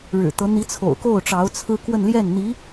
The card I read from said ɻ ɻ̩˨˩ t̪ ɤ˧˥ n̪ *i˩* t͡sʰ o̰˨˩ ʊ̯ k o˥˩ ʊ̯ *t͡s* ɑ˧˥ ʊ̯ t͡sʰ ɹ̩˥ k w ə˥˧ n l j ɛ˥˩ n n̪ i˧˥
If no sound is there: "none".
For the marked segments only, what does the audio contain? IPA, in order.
i˧˥, ʈ͡ʂ

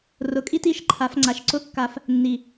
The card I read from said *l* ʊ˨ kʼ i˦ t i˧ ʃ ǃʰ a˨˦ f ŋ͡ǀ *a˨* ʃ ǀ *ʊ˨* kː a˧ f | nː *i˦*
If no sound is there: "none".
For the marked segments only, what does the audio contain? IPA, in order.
r, a˨, ʊ˦, i˨

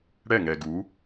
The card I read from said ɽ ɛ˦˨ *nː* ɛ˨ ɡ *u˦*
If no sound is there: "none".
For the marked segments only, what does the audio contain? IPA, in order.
ŋ, u˨˦

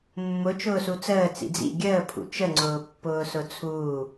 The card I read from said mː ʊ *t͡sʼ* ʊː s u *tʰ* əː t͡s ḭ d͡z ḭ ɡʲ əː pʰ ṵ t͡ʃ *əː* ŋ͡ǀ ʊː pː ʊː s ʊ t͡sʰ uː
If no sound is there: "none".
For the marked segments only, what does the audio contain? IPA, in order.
t͡ʃ, t͡s, ə

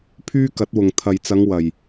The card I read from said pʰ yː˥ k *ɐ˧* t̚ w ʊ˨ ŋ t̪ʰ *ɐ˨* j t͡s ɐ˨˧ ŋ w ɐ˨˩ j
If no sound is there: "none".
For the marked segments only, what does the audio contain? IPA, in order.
ɐ˨˥, ɐ˨

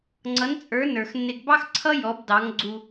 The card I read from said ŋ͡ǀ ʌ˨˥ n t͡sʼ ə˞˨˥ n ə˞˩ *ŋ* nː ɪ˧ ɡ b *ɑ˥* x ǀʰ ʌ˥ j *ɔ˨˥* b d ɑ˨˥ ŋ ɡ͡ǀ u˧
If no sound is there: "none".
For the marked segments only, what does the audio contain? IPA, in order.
x, ɑ˥, ɔ˨˥

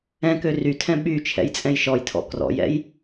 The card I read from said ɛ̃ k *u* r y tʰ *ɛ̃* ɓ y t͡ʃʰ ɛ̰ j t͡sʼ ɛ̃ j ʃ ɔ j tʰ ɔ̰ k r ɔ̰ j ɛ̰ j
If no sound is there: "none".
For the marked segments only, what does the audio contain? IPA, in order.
ø, ɛ̃

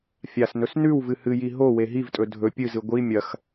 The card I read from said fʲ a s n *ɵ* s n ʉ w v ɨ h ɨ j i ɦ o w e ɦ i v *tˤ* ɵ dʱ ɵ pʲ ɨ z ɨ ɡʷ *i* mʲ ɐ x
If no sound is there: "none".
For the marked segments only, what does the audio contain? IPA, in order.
ɵ, tʼ, i

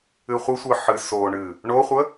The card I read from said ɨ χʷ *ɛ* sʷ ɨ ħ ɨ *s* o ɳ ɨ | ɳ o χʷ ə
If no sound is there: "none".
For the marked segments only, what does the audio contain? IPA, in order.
ɨ, s

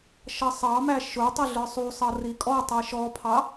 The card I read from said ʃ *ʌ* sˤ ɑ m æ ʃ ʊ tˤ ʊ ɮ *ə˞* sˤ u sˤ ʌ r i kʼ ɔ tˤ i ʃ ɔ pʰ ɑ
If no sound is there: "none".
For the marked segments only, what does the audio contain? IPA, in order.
ʌ, ə˞

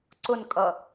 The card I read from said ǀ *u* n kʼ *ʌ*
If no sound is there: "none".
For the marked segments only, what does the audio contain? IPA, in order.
ʊ, ʌ

